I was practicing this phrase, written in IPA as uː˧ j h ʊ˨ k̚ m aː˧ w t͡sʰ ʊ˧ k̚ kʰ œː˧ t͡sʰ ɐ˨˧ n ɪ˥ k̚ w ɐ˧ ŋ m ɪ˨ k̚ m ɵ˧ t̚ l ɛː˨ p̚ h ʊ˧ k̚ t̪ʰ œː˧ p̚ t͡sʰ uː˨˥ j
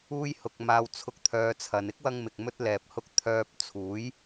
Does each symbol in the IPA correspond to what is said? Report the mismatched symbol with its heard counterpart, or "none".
kʰ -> t̪ʰ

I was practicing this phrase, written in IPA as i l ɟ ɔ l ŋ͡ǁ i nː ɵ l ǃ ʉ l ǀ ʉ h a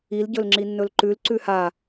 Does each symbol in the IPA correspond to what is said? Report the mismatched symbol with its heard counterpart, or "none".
ɔ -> ɵ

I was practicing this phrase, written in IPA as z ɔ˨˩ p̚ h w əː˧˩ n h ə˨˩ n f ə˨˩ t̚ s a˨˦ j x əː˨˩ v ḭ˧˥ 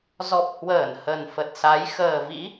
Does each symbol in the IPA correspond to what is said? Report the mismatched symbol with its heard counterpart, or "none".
none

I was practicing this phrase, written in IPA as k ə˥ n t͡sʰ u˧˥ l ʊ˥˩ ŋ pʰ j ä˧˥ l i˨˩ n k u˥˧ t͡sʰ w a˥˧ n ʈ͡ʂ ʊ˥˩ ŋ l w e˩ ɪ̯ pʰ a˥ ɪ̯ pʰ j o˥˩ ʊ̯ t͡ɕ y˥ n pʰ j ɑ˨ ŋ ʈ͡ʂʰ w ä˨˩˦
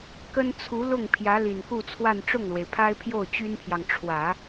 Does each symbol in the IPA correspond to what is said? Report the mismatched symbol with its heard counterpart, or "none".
none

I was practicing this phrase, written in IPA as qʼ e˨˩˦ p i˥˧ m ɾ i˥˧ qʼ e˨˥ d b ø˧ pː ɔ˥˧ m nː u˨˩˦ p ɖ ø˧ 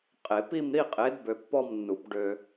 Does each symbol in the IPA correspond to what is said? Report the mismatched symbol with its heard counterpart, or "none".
none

